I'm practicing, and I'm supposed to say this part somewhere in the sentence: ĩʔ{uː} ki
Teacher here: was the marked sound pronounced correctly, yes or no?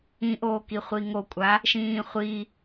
no